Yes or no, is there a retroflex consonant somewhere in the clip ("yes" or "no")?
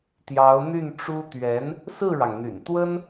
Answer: yes